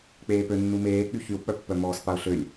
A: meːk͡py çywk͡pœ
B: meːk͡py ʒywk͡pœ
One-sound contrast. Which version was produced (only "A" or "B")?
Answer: A